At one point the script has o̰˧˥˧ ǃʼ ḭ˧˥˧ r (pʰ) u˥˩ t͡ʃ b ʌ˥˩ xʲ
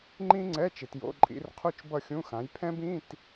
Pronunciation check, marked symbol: incorrect: qʰ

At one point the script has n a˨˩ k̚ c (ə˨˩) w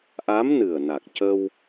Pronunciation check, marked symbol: incorrect: ə˧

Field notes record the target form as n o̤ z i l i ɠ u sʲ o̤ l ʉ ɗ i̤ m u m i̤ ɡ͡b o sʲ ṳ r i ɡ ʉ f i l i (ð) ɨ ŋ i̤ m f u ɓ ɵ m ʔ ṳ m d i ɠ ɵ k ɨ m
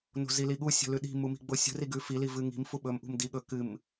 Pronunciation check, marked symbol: incorrect: v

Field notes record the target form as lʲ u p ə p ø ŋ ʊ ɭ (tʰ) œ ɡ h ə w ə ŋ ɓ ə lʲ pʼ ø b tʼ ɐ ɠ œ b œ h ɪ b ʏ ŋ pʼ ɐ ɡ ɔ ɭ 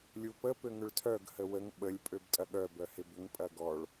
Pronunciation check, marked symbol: correct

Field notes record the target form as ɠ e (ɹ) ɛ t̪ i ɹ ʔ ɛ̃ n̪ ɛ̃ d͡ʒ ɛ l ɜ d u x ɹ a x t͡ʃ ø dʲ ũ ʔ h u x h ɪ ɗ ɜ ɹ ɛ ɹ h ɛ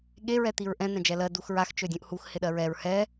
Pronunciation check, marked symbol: correct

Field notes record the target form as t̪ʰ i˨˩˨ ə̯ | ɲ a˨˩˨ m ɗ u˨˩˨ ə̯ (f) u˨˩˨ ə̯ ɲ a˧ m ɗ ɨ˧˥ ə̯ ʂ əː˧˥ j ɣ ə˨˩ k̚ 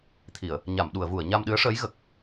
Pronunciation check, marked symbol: incorrect: v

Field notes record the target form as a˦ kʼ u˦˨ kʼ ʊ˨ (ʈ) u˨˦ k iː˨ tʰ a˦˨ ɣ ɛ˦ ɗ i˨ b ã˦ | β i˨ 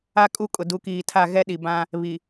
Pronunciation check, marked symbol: incorrect: d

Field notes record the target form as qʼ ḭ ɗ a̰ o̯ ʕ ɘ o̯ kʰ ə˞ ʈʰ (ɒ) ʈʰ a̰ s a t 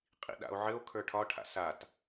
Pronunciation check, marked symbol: correct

